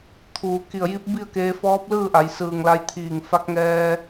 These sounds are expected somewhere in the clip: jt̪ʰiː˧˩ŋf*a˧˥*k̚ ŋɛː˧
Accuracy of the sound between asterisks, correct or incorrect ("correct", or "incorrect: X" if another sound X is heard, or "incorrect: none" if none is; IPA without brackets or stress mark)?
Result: correct